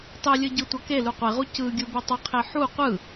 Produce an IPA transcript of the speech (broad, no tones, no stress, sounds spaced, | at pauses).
tˤ i lʲ ɯ ɟ ɯ tʷ ʌ k e l u qʷ e ʁ u c ɯ ɡʲ u b i tˤ ʌ qʰ e ħ u qʷ ɯ